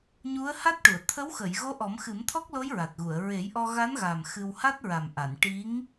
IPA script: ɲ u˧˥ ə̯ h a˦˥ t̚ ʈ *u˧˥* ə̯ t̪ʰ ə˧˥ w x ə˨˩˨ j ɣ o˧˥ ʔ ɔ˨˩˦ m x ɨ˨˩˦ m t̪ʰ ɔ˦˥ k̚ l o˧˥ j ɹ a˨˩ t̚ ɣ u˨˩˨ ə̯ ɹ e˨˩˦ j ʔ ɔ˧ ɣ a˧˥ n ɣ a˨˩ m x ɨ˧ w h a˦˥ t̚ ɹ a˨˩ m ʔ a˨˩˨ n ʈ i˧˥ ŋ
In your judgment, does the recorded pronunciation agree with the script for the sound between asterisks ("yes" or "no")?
no